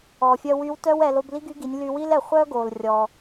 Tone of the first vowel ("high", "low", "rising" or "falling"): low